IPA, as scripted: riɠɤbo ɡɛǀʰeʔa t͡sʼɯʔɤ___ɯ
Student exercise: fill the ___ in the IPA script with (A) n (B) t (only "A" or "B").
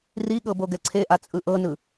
A